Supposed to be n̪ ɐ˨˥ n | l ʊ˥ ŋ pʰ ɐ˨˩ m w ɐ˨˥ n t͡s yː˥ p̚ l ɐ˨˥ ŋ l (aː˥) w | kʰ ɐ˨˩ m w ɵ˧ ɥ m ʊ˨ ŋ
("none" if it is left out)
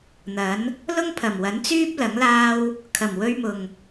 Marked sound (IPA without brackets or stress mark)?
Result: aː˥